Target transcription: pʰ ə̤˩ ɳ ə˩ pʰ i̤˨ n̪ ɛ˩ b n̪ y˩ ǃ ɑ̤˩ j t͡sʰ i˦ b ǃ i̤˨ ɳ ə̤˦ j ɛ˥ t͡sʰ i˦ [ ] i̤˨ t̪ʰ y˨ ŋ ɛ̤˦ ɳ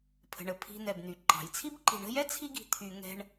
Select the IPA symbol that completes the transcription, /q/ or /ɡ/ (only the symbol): ɡ